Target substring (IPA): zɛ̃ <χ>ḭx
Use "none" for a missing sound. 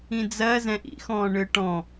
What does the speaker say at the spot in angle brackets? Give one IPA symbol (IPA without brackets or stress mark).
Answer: ʔ